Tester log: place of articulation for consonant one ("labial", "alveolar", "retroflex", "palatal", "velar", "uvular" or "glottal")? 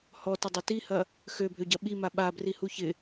glottal